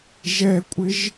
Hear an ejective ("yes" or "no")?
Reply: yes